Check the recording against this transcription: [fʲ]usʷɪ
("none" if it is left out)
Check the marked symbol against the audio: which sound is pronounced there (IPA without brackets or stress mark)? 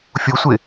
fʲ